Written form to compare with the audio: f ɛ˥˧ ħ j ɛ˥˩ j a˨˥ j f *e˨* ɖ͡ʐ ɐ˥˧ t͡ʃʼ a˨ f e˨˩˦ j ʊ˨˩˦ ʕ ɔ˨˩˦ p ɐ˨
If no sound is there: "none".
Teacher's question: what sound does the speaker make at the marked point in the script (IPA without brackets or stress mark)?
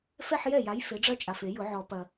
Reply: e˨˥